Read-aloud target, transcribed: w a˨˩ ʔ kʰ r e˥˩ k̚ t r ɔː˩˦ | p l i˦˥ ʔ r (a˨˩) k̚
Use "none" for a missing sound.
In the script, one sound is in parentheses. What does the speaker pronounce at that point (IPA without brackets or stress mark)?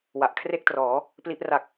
a˨˩